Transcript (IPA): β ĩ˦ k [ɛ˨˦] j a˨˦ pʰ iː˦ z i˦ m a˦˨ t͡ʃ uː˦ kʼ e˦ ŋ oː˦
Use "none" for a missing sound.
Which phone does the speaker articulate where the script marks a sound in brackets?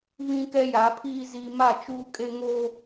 ɛ˦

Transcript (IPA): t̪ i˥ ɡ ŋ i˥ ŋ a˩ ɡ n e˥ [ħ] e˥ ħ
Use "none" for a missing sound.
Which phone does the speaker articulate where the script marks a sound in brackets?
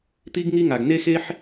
x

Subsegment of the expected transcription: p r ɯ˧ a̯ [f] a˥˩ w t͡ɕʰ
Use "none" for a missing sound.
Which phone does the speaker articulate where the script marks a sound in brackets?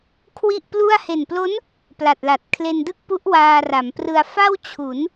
f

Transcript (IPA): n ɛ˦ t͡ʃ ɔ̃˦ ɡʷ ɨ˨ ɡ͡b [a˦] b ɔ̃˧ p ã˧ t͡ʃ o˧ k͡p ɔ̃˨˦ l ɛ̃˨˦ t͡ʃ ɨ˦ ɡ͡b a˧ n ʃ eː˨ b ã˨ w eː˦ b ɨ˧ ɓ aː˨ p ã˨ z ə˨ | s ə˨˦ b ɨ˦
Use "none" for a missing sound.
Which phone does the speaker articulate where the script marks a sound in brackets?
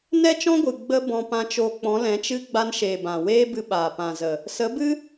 ə˦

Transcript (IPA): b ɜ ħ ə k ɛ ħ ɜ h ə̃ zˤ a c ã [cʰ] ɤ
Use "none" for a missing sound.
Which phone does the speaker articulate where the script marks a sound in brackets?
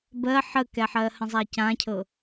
cʰ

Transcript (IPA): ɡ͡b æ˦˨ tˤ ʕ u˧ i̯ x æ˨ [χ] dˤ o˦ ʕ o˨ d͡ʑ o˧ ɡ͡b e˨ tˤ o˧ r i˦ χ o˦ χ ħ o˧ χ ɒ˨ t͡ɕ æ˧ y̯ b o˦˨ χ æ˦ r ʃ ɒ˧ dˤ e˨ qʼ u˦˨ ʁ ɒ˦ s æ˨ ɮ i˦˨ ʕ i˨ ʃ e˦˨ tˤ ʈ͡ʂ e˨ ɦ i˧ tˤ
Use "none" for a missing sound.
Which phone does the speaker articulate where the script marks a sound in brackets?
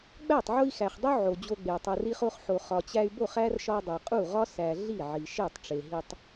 χ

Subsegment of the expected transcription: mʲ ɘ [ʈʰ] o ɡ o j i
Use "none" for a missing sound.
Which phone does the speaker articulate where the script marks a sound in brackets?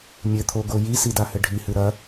t̪ʰ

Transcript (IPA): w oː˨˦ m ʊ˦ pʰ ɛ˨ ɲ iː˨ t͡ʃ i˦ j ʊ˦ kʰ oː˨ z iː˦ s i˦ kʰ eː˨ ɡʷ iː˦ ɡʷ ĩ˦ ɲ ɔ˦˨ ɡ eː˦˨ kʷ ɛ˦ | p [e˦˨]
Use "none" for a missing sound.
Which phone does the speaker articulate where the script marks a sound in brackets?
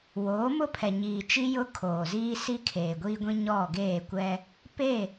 e˦˨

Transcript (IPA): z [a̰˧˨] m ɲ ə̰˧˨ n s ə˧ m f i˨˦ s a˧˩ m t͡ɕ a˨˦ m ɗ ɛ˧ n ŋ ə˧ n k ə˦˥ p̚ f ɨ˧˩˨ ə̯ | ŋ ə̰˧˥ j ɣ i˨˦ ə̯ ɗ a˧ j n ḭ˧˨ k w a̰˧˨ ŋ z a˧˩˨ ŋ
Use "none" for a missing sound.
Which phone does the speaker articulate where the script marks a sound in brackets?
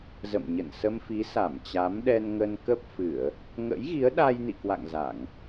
ə̰˧˨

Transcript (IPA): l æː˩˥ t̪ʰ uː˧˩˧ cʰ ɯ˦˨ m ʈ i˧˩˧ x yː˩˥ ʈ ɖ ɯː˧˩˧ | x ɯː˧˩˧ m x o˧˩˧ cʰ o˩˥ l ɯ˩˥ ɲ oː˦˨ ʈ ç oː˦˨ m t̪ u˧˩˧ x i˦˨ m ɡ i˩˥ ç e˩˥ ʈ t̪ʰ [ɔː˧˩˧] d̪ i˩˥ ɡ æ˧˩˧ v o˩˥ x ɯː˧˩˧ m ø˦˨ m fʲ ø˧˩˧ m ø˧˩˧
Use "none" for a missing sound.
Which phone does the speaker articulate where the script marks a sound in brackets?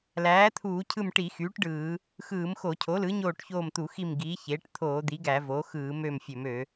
oː˧˩˧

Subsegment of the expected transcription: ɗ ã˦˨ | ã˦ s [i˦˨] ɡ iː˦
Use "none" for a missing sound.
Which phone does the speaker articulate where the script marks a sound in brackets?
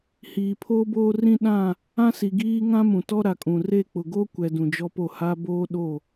i˨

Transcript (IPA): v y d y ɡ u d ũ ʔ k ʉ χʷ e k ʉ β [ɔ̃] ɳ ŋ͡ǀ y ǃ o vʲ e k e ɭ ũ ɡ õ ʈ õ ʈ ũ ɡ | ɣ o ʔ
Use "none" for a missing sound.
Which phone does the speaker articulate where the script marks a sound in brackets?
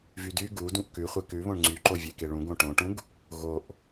õ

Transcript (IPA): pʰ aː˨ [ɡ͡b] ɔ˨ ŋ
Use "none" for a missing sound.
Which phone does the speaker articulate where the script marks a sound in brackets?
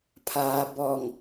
b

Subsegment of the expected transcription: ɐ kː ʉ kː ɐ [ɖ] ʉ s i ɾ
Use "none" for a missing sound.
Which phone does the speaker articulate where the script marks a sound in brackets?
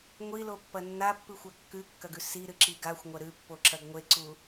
ɡ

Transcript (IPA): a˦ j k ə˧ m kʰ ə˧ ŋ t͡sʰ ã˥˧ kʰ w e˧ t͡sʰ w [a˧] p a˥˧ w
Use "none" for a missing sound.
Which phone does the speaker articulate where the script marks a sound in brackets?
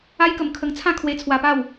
a˧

